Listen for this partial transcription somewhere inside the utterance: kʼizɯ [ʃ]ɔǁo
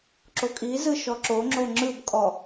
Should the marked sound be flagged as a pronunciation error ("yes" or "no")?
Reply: no